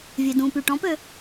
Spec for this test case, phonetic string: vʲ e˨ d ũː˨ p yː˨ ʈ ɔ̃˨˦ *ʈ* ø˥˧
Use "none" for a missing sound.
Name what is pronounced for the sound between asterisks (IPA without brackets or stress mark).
p